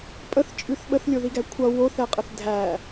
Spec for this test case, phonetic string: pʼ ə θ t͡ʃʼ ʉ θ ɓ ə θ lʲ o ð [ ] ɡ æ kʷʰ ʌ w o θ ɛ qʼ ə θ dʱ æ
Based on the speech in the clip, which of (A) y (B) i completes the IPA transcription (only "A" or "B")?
B